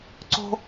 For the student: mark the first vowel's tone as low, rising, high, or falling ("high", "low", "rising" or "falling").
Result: high